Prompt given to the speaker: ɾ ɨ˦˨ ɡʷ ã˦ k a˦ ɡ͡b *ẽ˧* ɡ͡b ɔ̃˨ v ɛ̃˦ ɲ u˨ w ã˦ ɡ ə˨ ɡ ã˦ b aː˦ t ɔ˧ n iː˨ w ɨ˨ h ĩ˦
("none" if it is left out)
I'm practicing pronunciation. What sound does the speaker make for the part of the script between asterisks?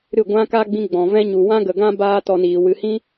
ĩ˧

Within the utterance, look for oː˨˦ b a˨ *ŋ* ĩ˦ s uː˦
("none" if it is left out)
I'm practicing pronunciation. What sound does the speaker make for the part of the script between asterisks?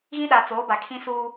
kʰ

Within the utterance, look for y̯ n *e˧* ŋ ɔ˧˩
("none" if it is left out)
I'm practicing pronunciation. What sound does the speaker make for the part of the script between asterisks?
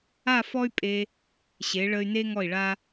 e˥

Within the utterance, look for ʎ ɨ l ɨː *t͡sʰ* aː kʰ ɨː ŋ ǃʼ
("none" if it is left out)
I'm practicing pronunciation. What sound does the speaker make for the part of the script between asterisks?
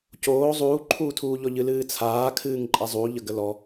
t͡sʰ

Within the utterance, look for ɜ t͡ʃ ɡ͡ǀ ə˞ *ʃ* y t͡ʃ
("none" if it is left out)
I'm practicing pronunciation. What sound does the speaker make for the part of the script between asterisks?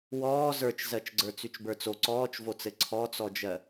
t͡s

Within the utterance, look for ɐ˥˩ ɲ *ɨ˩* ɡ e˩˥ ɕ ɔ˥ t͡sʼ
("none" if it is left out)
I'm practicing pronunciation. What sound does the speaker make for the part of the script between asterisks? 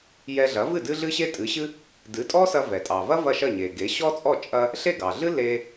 e˩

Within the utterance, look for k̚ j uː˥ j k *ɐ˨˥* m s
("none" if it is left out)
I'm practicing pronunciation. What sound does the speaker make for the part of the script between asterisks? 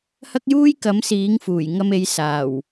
ɐ˨˥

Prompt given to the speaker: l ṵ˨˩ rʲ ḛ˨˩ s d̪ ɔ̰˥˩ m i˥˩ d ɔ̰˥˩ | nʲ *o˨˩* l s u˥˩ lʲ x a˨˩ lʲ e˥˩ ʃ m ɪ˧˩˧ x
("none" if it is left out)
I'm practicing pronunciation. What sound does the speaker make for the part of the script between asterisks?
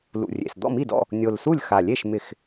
o˨˩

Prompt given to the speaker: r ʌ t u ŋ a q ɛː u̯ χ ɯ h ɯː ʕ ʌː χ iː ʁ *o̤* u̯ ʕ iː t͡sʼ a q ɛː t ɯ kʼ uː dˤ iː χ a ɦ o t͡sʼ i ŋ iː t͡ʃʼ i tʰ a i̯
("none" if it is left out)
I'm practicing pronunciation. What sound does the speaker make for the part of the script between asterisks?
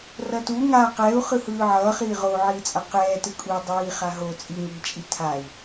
o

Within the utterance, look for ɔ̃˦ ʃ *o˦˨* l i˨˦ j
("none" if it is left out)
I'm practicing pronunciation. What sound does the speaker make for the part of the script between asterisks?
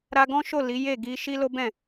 o˦˨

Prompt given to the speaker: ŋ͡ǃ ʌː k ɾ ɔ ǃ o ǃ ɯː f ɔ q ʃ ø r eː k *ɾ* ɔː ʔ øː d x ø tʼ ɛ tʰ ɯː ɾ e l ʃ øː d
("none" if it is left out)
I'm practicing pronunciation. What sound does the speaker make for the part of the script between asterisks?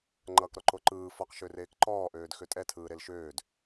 ǃ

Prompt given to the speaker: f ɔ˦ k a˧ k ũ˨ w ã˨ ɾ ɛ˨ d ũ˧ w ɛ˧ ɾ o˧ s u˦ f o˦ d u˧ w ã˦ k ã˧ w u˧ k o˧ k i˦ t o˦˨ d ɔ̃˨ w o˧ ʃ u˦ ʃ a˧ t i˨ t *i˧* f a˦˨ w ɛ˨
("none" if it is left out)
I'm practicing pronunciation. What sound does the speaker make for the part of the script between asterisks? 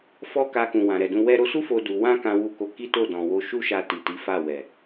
i˨˦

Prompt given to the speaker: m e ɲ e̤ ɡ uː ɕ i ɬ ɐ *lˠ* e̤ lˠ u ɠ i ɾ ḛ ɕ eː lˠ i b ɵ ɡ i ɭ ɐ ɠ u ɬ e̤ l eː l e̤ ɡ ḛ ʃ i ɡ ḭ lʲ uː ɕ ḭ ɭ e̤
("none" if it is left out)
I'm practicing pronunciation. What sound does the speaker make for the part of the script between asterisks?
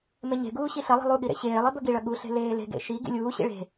lˠ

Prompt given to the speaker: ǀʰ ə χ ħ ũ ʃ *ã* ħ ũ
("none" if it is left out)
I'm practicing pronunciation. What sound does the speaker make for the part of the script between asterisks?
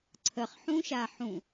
a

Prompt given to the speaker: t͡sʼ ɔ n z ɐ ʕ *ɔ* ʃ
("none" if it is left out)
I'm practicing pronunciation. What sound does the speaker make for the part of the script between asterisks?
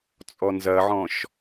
ɔ̃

